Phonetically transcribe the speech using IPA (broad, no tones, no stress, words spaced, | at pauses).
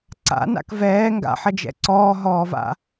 ǀa̰na̰k vɛː ŋɡa̰ħɐd͡ʒɛ̰ ǀɔːɦɔːva̰